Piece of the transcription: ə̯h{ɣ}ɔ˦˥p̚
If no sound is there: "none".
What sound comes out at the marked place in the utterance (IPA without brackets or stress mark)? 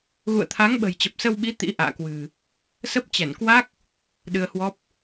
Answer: w